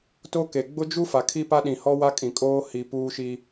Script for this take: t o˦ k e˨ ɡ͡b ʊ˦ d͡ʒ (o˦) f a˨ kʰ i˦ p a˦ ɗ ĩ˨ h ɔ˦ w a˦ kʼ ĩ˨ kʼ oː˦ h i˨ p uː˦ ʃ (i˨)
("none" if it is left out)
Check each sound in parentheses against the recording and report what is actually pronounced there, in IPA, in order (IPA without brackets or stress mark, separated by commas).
u˦, i˦